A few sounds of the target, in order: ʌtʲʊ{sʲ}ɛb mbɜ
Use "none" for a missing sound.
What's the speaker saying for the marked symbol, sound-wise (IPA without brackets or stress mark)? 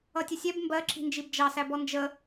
sʲ